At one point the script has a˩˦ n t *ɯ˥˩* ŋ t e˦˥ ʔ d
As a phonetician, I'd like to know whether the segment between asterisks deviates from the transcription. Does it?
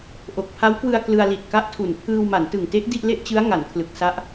yes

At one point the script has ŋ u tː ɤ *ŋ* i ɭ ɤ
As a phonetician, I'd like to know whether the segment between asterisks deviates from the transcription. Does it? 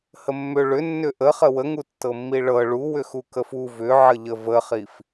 yes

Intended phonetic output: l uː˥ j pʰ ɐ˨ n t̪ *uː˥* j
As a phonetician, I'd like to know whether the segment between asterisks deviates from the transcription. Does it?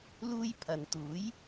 yes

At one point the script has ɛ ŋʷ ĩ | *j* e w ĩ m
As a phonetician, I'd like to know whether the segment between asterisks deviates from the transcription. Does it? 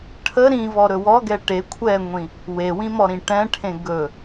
yes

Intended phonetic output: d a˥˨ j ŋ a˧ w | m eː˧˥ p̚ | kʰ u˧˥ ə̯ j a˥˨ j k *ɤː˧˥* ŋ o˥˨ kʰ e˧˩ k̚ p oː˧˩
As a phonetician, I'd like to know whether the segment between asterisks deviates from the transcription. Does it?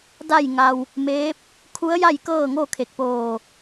yes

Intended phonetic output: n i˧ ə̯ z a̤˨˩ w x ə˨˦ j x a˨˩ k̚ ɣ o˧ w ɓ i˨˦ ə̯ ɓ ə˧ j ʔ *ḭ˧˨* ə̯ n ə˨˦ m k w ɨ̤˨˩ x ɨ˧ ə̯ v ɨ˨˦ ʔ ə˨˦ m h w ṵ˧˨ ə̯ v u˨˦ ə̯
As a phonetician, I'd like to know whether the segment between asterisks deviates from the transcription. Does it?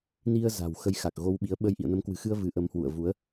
no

